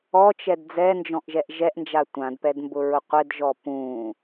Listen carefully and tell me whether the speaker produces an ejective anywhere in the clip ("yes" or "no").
no